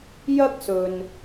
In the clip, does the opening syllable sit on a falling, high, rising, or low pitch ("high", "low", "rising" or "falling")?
high